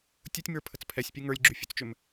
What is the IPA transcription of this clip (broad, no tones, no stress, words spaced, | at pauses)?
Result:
tʲutʲ mə˞pʰət͡s pʰɛsʲpʲu ŋə˞lʲɡ͡ǁyfʲut͡st͡ʃʏm